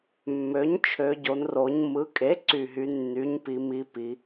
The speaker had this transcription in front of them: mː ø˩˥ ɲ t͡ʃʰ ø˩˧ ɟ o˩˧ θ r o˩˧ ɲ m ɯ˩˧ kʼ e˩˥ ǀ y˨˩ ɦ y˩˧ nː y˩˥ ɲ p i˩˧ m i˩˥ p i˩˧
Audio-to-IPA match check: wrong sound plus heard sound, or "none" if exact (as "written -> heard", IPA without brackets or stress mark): θ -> n